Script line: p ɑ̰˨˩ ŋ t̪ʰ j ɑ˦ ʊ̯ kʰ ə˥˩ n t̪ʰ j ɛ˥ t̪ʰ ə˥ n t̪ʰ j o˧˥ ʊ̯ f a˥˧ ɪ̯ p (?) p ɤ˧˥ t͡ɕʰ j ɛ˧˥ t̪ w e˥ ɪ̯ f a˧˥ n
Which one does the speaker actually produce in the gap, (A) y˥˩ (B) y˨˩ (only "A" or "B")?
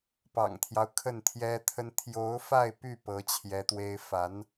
A